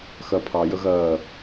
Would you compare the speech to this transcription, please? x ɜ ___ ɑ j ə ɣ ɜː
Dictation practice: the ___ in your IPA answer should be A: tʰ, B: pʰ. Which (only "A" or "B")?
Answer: B